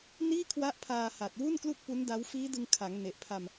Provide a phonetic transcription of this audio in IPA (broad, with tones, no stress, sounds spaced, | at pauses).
n iː˥˩ kʰ w a˦˥ ʔ pʰ aː˧ h a˨˩ t̚ w u˥˩ n k l u˥˩ k̚ p u˦˥ n d a˦˥ w f iː˦˥ d ɯ˧ ŋ kʰ a˩˦ ŋ n e˨˩ ʔ pʰ a˧ m